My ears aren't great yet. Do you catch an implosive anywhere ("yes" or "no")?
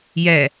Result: no